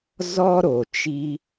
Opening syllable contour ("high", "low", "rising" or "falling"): high